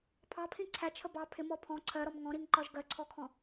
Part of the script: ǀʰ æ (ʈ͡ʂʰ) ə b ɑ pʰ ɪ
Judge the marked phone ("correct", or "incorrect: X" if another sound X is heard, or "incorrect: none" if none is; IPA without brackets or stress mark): incorrect: t͡ʃʰ